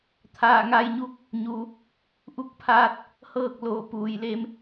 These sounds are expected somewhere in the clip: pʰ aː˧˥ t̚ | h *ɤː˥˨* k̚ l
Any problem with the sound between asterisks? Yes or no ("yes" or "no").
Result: no